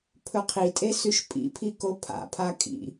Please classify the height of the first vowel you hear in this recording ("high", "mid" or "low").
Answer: mid